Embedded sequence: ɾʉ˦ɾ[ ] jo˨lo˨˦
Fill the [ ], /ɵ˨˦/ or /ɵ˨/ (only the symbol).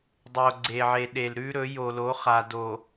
ɵ˨˦